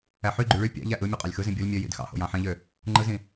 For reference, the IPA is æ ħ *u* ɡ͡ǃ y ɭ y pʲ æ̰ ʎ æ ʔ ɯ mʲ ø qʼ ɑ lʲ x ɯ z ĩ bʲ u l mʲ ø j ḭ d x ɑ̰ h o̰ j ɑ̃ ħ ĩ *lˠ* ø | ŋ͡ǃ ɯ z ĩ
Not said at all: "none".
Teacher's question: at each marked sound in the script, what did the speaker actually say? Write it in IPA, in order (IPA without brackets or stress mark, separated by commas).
y, ʎ